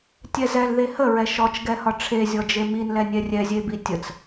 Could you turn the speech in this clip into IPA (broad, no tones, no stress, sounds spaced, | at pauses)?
tʲ ɛ z ɛ l ð e h ə ɹ ɛ ʃ ɔ t͡ʃ ɡ ɛ h ɒ ʈ͡ʂʰ e zʲ ɔ d͡ʒ e m i n l ɛ nʲ ɛ rʲ ɛ zʲ e b i tʲ ə t͡s